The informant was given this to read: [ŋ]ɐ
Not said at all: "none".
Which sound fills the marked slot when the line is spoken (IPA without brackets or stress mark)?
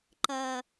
ǃ